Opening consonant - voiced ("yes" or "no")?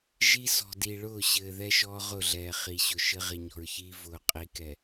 yes